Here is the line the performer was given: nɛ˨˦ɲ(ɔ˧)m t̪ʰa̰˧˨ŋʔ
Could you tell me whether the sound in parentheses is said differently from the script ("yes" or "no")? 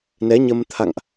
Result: yes